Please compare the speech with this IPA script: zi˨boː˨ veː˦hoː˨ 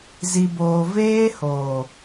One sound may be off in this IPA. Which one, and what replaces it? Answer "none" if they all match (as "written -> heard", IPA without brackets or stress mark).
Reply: none